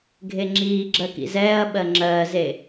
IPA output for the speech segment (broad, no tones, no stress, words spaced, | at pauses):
ɡʱeŋ͡ǁiːɡ͡ǁɜ kḭzɛːɐ̯ɓɜ ŋ͡ǁɜːze